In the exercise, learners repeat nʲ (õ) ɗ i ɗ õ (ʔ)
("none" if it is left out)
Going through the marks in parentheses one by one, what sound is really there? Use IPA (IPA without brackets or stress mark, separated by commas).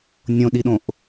õ, ʔ